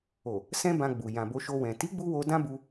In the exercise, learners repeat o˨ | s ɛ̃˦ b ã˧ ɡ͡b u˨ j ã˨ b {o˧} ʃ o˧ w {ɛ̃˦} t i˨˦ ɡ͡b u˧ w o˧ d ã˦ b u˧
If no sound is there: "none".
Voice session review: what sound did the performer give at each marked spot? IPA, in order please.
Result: o˧, ɛ̃˨

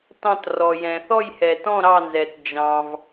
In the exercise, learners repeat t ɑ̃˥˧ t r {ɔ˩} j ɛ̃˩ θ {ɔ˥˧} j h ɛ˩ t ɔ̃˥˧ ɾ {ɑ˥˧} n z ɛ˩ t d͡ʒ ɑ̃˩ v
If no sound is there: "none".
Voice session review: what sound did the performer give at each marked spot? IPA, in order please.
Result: ɔ˩, ɔ˥˧, ɑ˥˧

